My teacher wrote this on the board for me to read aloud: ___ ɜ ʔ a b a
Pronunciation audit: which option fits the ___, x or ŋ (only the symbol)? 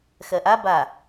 x